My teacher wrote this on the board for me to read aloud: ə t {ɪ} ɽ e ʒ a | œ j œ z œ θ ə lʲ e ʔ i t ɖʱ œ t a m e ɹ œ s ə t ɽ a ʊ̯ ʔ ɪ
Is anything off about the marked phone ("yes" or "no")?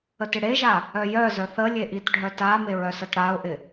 no